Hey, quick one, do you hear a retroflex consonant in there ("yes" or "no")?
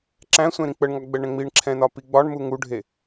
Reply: yes